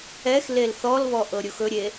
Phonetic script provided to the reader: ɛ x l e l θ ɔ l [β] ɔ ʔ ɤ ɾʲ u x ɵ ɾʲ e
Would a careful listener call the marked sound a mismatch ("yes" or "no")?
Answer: no